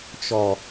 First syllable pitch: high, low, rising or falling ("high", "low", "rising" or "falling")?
low